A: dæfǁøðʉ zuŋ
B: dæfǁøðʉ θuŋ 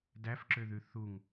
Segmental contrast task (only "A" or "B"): B